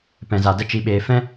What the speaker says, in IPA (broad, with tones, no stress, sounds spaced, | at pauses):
p ɛ̃˧ z a˧ d ə˦ t͡ʃ i˦ ɓ eː˦ f ɛ̃˦